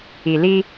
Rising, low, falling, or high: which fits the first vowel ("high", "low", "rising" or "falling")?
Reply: low